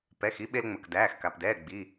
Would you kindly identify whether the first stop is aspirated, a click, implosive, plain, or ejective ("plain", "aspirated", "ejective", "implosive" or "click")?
plain